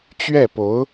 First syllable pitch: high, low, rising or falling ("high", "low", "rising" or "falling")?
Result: falling